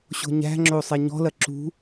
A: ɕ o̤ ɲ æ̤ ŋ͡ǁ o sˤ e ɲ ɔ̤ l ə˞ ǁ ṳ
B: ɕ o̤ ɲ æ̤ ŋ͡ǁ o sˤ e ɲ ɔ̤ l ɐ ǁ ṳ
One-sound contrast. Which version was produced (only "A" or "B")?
B